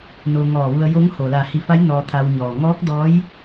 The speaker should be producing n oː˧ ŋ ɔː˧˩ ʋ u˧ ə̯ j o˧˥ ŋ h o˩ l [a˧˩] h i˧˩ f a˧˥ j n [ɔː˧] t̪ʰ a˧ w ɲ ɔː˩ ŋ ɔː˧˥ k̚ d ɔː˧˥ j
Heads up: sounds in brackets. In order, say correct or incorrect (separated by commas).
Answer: correct, correct